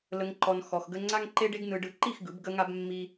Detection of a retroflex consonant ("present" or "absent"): present